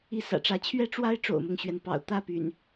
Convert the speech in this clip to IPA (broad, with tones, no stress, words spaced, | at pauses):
i˦sä̰˨˩ʈ͡ʂä˨˦ t͡ɕʰɥɛ˦ʈ͡ʂwa˦ɪ̯ ʈ͡ʂo̰˨˩ʊ̯mʊ˦ŋɕɥɛ˩npɑ̰˨˩ʊ̯ t̪ä˥˨py̰˨˩n